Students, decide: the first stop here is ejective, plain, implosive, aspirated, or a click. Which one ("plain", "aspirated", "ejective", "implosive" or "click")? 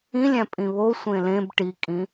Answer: ejective